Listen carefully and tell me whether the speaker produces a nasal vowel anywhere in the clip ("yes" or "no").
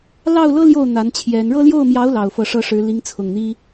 no